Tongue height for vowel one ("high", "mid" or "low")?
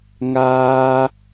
low